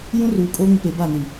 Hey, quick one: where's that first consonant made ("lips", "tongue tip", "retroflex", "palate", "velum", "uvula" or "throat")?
palate